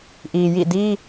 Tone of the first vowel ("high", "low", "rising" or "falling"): low